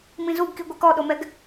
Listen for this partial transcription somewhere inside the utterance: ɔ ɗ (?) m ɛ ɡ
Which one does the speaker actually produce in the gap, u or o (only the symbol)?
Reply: o